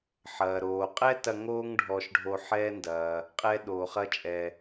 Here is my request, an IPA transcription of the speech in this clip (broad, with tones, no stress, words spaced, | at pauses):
ħɐː˩ɾoː˩qʼɛ˥tɐ˧ ŋoː˥ŋ ɖʱɔː˧ʃɖʱo˧ħɛː˥ndɐː˩ | qʼɛː˥ɗoː˩χɐː˥t͡ʃʼɛ˩